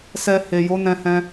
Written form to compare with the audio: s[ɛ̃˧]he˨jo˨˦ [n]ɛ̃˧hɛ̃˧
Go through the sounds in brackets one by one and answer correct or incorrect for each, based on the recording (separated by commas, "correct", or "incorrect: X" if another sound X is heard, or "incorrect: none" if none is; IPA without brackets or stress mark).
incorrect: ɛ˧, correct